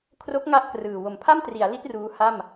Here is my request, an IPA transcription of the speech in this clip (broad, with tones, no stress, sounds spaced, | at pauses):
kʰ r o˦˥ k̚ ŋ a˥˩ ʔ k r ɯː˨˩ w o˨˩ m pʰ a˥˩ m t r i˩˦ a̯ l i˦˥ t̚ r uː˦˥ h a˥˩ m